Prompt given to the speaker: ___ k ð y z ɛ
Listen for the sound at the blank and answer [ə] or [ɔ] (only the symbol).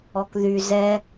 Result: ɔ